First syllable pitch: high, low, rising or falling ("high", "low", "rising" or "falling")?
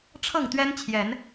falling